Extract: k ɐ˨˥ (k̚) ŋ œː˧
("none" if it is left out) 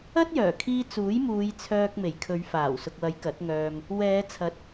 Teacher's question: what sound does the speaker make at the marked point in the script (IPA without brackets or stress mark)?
t̚